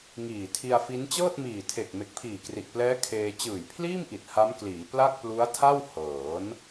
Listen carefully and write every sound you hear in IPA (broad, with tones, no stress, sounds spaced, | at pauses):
ŋ iː˨˩ tʰ i˧ a̯ f i˦˥ n t͡ɕ ɤː˥˩ t̚ m iː˨˩ tʰ e˨˩ k̚ m e˨˩ k̚ pʰ iː˨˩ k r i˨˩ ʔ p l ɛː˦˥ kʰ eː˧ t͡ɕ ɯː˨˩ j pʰ l iː˥˩ m ʔ i˨˩ t̚ h a˦˥ m k l iː˩˦ p l a˥˩ k̚ p l u˦˥ a̯ tʰ a˥˩ w h ɤː˩˦ n